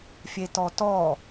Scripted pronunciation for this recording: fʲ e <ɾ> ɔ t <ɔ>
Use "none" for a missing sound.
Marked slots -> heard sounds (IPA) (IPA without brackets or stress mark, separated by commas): t, ɔ